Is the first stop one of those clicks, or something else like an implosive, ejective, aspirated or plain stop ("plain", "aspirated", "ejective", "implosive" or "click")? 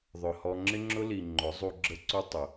click